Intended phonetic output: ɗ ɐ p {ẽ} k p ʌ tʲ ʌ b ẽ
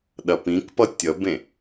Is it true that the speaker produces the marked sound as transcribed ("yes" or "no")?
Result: no